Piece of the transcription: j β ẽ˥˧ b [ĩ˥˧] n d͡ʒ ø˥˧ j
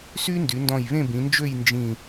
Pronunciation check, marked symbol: incorrect: ĩ˩˧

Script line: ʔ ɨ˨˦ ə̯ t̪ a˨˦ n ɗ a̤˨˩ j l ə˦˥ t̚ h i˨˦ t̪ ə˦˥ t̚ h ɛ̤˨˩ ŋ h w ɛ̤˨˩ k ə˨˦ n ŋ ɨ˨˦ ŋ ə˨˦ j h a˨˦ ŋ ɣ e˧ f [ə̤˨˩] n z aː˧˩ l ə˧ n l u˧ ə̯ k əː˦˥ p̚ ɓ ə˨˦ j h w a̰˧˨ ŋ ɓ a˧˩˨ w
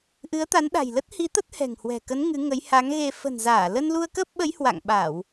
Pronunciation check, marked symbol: correct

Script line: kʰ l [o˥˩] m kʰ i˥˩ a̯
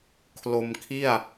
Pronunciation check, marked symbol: incorrect: o˧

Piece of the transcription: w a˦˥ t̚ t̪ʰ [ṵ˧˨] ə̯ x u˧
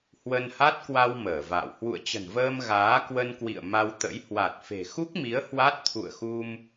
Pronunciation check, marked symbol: correct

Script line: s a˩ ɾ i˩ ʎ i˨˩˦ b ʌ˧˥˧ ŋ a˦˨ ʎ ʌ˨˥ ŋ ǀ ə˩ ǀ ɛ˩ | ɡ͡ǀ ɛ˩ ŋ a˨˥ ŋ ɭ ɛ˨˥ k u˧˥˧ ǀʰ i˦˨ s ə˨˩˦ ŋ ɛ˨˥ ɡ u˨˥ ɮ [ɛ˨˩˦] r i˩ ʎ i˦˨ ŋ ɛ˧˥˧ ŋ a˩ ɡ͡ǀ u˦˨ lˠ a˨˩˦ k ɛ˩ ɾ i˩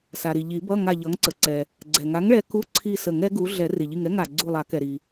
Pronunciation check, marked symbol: correct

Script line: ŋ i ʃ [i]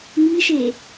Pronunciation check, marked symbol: incorrect: e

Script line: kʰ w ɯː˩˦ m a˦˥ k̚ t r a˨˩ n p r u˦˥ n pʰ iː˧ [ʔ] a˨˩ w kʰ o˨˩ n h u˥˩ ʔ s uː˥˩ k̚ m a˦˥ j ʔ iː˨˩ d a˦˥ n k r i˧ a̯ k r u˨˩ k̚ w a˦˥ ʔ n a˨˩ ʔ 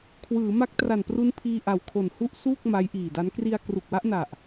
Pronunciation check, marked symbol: correct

